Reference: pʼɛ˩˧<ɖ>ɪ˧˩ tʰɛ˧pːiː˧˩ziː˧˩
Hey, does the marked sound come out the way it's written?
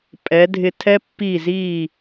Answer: no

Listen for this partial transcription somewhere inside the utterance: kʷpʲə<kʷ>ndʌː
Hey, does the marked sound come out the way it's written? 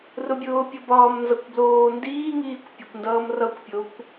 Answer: yes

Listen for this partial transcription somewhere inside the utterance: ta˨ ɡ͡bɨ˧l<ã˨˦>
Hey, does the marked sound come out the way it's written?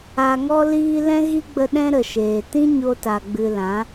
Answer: yes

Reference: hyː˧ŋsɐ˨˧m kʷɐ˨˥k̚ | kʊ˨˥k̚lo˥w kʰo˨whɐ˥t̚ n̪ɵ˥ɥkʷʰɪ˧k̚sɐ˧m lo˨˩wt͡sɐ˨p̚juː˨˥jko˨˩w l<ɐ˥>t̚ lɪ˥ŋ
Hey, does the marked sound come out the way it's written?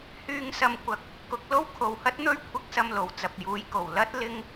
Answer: yes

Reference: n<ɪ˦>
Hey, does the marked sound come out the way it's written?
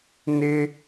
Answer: yes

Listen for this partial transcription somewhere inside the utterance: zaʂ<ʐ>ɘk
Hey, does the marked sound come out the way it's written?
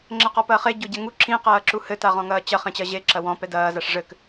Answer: yes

